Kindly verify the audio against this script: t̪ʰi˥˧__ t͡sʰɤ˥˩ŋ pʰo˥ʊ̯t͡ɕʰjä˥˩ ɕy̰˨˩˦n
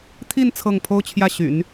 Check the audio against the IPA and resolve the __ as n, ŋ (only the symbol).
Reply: n